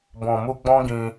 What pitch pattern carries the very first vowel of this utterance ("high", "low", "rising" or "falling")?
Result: low